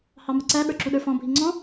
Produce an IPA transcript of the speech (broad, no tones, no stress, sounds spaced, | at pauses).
h ɑ m ə ǀ æ ɓ ə˞ ǁ u ɗ ə˞ f ɔ̃ bʱ i ŋ͡ǀ ɔ̃